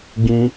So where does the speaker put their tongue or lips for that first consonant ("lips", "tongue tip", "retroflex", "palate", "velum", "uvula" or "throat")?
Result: velum